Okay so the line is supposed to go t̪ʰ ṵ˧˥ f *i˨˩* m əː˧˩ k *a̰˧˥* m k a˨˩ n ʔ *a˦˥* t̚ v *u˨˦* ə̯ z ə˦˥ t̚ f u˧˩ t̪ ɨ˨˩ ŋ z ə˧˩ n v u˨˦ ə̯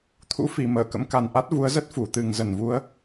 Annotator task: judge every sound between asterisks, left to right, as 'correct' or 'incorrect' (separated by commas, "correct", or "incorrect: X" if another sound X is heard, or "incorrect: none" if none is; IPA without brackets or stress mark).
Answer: correct, incorrect: ə̰˧˥, correct, correct